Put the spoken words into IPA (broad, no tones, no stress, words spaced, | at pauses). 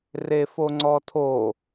refoŋ͡ǀɔtʰo